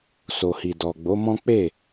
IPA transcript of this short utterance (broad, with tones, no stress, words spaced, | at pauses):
so˨hi˨ dɔ˨ɡ͡bo˨˦ mɔ̃˦ k͡pe˦˨